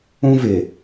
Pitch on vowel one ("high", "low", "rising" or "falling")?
high